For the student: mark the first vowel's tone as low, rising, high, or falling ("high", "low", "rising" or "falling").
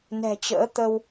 low